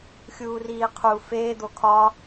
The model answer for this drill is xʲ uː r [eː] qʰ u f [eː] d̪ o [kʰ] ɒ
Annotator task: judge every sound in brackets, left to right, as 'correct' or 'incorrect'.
incorrect, correct, correct

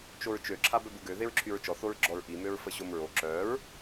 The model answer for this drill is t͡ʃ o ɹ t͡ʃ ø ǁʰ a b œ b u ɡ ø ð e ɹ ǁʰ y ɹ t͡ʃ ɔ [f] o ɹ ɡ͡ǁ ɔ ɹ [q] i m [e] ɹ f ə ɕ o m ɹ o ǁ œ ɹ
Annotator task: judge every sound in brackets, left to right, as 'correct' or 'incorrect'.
incorrect, incorrect, incorrect

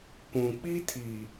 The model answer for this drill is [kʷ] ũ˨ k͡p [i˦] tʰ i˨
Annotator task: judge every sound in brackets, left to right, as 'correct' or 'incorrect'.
correct, correct

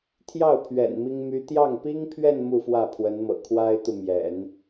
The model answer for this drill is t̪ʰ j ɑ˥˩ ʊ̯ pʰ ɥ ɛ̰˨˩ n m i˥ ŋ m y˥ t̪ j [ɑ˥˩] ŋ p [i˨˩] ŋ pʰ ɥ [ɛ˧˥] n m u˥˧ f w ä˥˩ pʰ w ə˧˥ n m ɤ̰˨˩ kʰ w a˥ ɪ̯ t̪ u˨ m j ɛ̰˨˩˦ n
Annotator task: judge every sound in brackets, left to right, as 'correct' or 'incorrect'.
correct, incorrect, incorrect

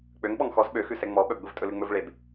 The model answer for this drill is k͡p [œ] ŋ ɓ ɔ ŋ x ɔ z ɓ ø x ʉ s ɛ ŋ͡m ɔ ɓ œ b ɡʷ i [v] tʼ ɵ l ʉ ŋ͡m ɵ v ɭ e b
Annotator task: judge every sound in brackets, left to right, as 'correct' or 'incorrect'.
incorrect, correct

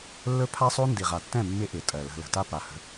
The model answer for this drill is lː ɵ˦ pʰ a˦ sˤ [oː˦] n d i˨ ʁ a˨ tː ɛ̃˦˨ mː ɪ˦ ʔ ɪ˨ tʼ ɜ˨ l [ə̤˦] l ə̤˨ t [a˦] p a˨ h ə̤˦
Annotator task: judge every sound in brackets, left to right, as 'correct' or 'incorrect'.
incorrect, incorrect, correct

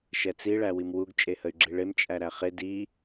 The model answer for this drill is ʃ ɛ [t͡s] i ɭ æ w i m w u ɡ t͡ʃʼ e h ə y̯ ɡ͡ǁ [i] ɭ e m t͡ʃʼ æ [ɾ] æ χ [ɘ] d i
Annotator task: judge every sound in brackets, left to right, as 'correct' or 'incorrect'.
correct, correct, correct, incorrect

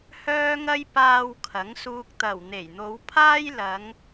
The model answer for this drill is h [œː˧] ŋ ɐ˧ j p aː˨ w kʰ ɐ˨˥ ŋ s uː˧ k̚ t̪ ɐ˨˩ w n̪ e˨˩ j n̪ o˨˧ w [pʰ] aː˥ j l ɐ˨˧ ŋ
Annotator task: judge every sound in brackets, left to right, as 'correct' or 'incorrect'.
correct, correct

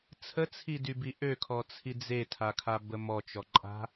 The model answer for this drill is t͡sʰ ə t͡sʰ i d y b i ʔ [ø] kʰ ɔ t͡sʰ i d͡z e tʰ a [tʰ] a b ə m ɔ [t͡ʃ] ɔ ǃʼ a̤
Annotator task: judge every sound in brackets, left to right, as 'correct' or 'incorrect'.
correct, incorrect, correct

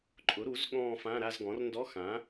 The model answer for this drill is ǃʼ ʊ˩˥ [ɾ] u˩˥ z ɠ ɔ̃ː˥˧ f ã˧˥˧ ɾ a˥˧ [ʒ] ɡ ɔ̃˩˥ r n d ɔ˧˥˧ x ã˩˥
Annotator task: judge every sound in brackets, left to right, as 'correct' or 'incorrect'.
correct, incorrect

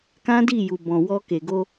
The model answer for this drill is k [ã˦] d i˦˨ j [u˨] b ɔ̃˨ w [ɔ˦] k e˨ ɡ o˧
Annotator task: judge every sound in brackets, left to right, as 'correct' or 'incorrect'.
correct, correct, incorrect

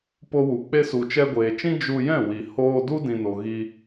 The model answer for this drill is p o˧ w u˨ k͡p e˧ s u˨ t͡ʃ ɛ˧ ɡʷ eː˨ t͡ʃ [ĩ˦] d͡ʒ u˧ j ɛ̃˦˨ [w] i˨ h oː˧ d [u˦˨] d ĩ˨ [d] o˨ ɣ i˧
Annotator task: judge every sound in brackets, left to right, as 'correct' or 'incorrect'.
correct, correct, incorrect, incorrect

